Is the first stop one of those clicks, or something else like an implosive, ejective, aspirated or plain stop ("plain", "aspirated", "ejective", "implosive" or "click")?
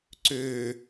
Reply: click